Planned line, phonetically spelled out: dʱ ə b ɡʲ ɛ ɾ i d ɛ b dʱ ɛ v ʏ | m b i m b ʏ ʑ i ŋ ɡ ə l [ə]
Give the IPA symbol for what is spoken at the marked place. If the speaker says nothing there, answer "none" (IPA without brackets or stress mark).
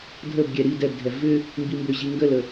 ə